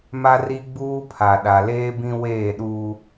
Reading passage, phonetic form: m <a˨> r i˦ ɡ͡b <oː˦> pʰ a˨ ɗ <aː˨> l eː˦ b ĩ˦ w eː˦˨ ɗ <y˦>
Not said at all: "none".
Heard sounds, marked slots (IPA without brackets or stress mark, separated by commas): a˦, uː˦, a˨, u˦